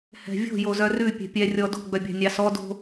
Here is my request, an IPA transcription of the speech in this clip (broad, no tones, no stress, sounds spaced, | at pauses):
h ɛ̤ vʲ o̤ j o z œ r ʉ pʲ ɛ̤ pʲ ɛ rʲ ɔ d o̤ ɡ͡b œ bʲ ɑ̤ nʲ ɑ s ɔ d o̤